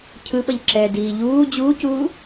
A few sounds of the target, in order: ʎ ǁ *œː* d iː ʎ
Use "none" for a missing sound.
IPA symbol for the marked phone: ɛː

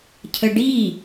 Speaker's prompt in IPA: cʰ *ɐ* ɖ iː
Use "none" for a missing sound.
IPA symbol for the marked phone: ə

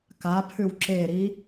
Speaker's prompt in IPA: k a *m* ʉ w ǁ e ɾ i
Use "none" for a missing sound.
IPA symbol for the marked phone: pʰ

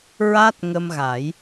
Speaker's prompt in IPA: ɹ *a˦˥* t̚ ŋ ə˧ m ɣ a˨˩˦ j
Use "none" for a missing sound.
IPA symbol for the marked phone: a˦˥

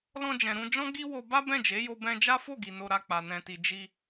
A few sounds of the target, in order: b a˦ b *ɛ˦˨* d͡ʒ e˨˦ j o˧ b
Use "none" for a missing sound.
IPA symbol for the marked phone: ɛ̃˦˨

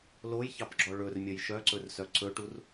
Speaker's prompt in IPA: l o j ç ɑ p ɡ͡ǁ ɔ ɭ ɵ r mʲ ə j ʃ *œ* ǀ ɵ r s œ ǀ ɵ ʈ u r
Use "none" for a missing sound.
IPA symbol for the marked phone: œ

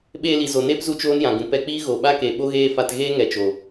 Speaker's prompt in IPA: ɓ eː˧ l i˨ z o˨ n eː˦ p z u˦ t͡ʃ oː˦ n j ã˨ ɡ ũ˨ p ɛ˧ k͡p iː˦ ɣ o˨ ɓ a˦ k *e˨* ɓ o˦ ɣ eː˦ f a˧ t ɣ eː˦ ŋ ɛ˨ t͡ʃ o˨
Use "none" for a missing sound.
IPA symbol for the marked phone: e˨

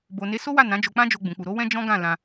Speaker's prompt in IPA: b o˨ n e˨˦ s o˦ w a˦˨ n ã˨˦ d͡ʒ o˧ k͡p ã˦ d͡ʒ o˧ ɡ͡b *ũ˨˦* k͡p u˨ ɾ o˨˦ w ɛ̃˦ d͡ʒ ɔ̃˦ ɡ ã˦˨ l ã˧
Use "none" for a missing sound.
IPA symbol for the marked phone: ũ˨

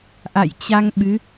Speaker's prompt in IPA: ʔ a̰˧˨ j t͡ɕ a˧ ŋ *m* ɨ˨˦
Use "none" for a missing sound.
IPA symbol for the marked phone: ɓ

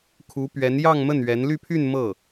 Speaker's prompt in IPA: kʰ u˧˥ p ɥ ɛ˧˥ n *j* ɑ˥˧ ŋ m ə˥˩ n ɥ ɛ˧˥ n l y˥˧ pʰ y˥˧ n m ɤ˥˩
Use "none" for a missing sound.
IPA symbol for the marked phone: j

